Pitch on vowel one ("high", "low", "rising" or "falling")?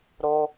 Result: high